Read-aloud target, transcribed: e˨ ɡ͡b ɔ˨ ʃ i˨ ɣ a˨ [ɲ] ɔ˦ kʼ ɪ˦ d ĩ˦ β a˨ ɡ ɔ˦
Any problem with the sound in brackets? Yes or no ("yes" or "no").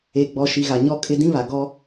no